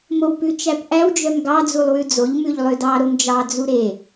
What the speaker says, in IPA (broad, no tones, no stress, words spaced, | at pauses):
mowpʉt͡ʃæpʔæw d͡ʒœmɡɑ d͡zulˠwʉd͡zoʎ mʉʎlˠødɑ ɾomd͡ʒɑ d͡zuɾe